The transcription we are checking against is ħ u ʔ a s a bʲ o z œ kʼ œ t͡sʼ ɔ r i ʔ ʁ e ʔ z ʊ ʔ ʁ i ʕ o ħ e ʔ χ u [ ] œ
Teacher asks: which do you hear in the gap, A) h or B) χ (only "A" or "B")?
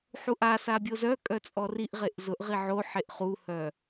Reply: A